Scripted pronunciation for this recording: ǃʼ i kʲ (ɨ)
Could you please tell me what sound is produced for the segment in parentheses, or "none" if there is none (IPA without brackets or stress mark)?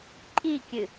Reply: ɨ